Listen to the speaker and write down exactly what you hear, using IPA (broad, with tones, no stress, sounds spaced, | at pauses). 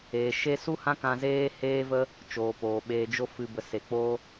eː˨ ʃ e˦ s u˦ h ã˦ k ã˧ z eː˦ h eː˦ v ə˦ | t͡ʃ oː˨ p oː˨ ɓ eː˧ d͡ʒ o˧ f ɨ˨ b ə˨ s e˨ k͡p oː˦